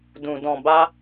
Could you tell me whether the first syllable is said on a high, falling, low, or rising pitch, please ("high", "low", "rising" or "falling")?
low